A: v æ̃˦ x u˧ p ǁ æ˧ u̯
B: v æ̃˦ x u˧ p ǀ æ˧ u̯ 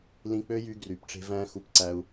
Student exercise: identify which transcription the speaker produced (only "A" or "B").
B